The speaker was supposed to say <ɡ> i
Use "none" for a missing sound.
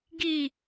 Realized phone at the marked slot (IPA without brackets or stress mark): ɡ